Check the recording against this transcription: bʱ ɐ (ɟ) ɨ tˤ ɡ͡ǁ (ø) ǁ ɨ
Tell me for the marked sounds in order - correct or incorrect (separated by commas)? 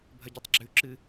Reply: correct, incorrect